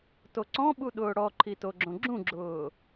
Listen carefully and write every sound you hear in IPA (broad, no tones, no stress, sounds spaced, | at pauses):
t o ǀ ɔ̃ ɓ u ɗ ʊː ɽ ɔ ǃʰ i t o ɡ͡ǁ õ ɡ͡ǁ ũ ɡ͡ǁ ʊː